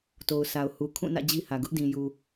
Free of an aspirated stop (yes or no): no